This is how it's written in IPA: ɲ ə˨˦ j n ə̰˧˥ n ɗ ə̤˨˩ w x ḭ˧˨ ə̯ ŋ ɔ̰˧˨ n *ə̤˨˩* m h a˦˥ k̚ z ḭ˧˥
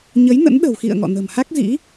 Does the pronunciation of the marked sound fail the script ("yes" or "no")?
no